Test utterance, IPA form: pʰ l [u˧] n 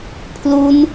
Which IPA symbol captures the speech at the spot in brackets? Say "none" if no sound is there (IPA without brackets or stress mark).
u˦˥